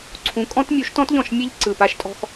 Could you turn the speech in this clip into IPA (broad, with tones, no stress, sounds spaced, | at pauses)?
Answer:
ǀʰ ũ˨˦ kʼ ɔ̃˦ t mʲ u˨˦ ʃ t ɔ̃˦ t ʎ ɔ̃˨ ʃ mʲ e˦ ʎ ǀ ɯ˨ p a˦ ʃ tʼ ɔ̤˦ x